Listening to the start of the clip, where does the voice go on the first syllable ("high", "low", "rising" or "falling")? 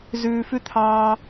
high